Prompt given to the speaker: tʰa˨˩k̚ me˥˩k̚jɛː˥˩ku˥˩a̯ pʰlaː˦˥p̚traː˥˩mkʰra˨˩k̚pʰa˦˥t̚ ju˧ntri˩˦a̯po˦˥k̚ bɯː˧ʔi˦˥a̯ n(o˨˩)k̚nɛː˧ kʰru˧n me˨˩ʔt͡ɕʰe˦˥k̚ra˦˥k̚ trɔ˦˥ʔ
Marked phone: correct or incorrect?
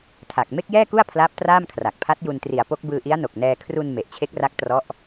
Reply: correct